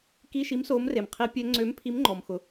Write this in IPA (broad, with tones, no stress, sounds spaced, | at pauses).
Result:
k i˧˥˧ ʃ i˨˥ m s oː˨˥ m r e˩ m qʰ i˨˥ pʲ ɛ˨˥ ŋ͡ǀ ø˨˥ m pʰ i˨˥ m ŋ͡ǃ ɔ˩ m x ʊ˩